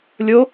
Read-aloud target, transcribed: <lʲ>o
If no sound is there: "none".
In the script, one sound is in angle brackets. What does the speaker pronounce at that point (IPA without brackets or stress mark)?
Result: lʲ